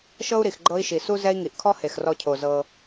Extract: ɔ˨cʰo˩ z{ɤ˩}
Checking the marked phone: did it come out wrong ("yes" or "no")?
yes